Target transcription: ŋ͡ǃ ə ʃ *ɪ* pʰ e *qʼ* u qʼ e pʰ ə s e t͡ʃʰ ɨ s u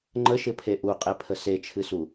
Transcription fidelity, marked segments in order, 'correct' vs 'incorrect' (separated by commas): correct, incorrect